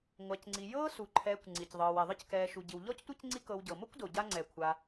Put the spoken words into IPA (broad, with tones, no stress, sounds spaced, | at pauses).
ŋʷ a˨ c ŋ͡ǀ i˨ j ɤː˦ s u˩ ǃʰ ɛː˨ kʷ ŋ͡ǀ i˩ c ðˤ ɤː˨ w ɛ˩ ðˤ ɯ˦ c k ɛː˨ ʃ u˩ ɟ i˩ w ʎ ɔ˥ c tʷ e˥ c ŋ͡ǀ i˦ k ɤ˨ w ɟ ɤ˩ m o˥ kʷ d o˩ ɟ a˦ ŋ͡ǀ ɛː˩ kʷʰ a˨